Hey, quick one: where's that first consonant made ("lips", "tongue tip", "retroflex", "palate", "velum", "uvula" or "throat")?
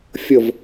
lips